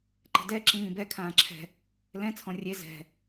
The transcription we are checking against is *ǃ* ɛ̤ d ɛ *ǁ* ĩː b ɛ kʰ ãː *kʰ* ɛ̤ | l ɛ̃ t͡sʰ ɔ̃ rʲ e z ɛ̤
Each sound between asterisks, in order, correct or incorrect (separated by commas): correct, correct, incorrect